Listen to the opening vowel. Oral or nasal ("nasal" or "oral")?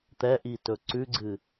oral